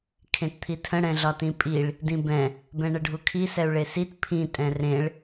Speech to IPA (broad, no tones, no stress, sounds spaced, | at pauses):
kʰ ẽ t t̪ʰ i tʰ ə̃ ɽ ɛ̃ ɮ ɒ t ĩ pʼ i ɭ | d ĩ b ɛ̃ | b ɛ̃ ɳ ə ɖʱ u kʰ i s ɛ u̯ ɭ e s i t pʰ ĩ tʼ ɛ̃ r ẽ ɭ